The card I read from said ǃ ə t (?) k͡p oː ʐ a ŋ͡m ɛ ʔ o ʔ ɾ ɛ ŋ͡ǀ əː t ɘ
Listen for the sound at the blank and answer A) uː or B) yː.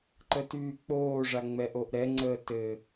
B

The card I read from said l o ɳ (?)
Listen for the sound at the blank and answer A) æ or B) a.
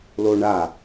B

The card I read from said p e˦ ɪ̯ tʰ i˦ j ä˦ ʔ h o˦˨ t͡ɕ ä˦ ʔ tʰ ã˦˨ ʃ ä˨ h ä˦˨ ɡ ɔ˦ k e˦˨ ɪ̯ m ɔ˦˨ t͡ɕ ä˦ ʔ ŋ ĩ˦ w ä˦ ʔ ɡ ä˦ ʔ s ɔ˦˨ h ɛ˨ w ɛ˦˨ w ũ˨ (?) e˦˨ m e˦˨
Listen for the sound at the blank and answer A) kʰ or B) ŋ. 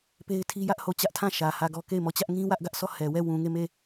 B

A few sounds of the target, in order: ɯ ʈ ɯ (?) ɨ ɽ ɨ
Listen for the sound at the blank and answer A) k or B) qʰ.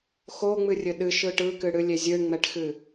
A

